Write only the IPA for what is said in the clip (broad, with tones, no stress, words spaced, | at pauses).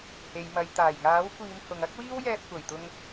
he˨˧j mɐ˨jt̪aː˨˩jŋaː˨˥wkʷiː˨˧m hʊ˨ŋɐ˥k̚ wiː˥wjɛː˧p̚kʷɐ˨˩jt̪ʊ˧ŋ